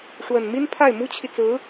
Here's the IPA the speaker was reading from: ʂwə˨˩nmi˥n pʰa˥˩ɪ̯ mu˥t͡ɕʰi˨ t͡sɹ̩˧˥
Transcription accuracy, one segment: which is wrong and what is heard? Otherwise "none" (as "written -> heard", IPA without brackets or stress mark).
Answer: none